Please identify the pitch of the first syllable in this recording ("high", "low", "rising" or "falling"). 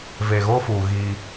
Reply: low